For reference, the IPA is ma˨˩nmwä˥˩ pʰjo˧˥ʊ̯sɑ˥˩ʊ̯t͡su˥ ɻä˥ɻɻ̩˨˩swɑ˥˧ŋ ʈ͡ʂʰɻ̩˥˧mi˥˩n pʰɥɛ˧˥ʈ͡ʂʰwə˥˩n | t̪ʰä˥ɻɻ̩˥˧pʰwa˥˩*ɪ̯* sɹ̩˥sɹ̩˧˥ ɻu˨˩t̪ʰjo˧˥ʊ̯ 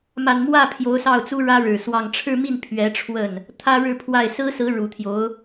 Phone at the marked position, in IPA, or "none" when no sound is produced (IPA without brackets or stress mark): ɪ̯